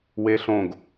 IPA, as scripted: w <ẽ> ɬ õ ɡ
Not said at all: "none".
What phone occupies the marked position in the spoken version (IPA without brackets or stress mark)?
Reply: e